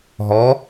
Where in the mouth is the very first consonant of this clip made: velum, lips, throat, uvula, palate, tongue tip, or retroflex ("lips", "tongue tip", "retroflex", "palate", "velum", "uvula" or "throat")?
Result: throat